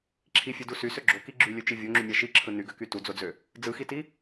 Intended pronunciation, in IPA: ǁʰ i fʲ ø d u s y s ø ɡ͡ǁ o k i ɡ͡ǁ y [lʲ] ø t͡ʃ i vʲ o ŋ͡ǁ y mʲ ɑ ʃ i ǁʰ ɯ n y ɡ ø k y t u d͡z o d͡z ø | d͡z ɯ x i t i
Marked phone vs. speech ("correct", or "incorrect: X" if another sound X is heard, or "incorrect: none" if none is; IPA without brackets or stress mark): correct